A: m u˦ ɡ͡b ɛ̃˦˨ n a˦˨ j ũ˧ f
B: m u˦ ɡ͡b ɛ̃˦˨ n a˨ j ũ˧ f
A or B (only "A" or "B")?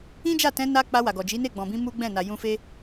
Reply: B